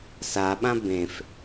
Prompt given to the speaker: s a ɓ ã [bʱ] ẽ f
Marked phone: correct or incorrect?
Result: incorrect: b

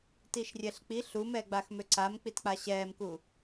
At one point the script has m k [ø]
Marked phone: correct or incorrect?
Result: incorrect: u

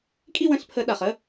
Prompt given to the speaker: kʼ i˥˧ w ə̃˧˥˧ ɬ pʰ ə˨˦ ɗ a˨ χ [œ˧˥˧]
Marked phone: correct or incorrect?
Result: incorrect: ə˧˥˧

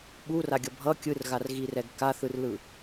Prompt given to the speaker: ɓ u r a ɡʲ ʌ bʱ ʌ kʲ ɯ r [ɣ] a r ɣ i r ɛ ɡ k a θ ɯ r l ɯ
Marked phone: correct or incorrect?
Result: correct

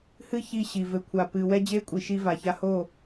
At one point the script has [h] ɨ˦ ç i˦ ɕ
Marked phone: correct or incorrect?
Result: correct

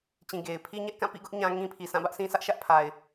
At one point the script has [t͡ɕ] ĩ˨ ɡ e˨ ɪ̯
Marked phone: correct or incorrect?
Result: correct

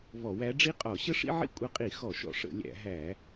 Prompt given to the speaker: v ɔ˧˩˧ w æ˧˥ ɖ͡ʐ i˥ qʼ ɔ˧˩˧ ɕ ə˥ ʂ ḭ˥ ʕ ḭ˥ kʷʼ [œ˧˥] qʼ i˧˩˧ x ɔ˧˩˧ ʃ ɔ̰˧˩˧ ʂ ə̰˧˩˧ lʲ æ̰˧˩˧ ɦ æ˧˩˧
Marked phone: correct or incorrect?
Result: incorrect: ə˧˥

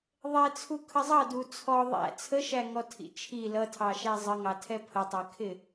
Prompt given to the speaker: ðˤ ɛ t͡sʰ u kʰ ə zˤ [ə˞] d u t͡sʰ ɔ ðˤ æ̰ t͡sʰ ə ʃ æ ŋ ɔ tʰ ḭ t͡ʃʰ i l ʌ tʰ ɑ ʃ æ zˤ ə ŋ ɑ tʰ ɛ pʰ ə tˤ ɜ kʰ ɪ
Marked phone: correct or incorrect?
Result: incorrect: ʌ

